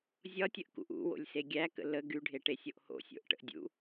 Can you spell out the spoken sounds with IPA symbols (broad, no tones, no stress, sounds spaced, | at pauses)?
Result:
zʲ ɒ tʲ ə ʔ k ṵ ʔ ṵ w o̰ lʲ s e ɡʲ æ k ə̰ l ə ɡ y ɖʱ e ʈ e sʲ o ʔ h o̰ sʲ o̰ ʔ ʈ ə̰ ʔ dʲ ṵ